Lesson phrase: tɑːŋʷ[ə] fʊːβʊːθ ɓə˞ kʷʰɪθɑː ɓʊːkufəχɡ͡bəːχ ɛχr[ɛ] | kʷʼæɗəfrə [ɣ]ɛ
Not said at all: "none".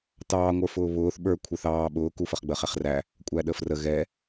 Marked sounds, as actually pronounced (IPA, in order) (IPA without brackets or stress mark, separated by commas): ə˞, æ, ɣ